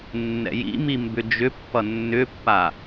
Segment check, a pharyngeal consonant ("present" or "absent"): absent